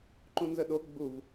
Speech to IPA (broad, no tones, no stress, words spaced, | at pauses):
ǃũnzəɗo ɡ͡buv